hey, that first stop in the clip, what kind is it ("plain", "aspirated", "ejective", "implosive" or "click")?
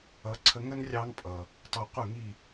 click